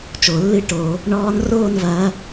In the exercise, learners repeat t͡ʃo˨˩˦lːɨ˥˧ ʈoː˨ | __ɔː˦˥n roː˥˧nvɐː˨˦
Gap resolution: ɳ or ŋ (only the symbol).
ɳ